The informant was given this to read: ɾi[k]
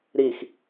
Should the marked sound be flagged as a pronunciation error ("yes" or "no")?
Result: yes